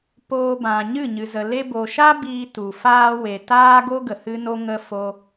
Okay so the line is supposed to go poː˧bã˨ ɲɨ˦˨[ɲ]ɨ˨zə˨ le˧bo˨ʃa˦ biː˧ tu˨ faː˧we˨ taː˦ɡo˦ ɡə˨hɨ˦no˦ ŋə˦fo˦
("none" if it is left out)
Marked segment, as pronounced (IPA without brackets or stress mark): ɲ